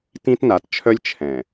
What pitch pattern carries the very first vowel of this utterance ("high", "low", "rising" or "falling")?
high